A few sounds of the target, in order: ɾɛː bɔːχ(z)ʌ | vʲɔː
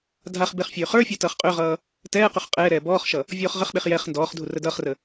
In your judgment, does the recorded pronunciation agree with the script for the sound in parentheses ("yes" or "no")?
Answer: no